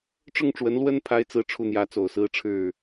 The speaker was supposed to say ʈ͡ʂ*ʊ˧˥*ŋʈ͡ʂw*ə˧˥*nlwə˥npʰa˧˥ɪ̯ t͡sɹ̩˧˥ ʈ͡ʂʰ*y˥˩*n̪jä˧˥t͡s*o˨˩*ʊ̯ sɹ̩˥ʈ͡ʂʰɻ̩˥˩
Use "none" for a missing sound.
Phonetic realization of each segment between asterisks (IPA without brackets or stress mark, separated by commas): ʊ˥˩, ə˧˥, u˥˩, o˨˩